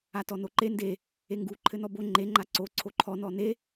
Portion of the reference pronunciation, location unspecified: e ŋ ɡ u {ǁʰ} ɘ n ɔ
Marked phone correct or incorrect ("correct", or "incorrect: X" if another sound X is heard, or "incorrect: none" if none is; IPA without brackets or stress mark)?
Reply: incorrect: ǃʰ